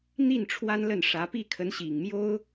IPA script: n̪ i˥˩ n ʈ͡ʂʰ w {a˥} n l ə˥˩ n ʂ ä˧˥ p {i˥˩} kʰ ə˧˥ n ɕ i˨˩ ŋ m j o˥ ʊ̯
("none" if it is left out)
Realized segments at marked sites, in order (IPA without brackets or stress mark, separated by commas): a˥, i˥˩